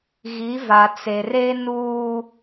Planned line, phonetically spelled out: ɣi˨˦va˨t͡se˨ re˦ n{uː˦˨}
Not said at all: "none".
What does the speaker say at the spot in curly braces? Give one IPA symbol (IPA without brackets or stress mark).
uː˦